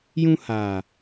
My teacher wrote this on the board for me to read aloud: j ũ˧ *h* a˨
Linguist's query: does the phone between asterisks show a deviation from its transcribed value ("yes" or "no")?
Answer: no